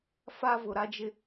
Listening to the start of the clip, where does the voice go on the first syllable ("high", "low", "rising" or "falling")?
high